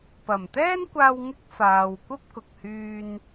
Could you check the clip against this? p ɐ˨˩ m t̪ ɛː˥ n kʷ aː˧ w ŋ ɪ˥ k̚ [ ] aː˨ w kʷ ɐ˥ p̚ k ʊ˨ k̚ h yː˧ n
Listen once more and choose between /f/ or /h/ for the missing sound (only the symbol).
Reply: f